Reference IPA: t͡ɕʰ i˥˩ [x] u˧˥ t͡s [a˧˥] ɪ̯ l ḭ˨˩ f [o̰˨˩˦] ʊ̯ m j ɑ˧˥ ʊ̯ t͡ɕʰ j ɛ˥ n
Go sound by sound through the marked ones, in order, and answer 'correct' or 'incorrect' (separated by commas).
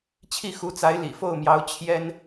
correct, correct, incorrect